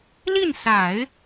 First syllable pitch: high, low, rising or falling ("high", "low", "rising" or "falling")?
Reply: falling